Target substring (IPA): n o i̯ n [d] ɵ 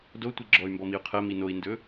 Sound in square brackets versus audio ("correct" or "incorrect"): correct